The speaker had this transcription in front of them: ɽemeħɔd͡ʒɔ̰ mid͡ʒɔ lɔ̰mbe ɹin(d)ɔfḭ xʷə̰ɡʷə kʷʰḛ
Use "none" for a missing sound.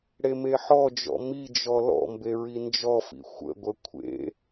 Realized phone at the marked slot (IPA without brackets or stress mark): d͡ʒ